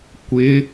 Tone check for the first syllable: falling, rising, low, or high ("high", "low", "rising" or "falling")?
rising